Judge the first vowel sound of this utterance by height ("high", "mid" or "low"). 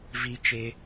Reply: high